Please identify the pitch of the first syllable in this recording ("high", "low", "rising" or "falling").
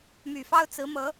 low